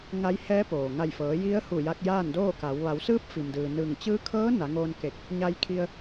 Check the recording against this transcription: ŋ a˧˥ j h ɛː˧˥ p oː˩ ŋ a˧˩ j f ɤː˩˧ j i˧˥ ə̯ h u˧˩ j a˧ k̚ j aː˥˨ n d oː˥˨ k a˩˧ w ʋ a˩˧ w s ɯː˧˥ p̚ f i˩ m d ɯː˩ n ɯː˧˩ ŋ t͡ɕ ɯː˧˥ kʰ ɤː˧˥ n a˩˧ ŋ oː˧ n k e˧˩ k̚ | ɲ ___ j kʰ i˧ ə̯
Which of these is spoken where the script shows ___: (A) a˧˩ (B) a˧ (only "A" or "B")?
B